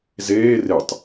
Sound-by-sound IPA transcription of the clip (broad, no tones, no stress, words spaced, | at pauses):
zeː retˤ